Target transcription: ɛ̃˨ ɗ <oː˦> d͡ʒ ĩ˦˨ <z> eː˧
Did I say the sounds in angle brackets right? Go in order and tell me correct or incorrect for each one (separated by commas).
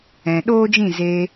correct, correct